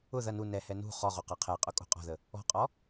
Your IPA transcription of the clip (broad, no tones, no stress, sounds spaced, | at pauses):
ʊ ð ɐ n u n ɛ h ɛ n ṳ χ ɔ ʁ o q ɐ qʰ ɛ qʼ ʊ kʼ o̤ qʼ ɔ̤ ð ə | ɔ̤ qʼ ɔ